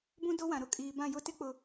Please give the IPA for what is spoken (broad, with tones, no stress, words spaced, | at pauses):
bũ˦do˦wã˨ ɾʊ˨kʼiː˨ bã˦˨jʊ˦tɪ˦ k͡pʊ˨